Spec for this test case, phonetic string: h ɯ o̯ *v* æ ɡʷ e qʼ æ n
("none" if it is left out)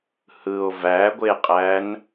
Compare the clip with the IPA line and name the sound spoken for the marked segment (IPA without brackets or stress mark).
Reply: v